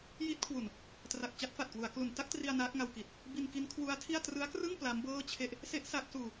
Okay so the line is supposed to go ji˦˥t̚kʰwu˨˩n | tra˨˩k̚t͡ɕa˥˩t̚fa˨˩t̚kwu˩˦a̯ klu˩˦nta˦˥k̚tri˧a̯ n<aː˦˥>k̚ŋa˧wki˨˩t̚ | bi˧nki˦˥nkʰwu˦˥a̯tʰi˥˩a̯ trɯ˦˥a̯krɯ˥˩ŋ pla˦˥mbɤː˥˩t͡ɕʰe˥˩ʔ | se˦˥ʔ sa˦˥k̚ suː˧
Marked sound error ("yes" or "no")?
no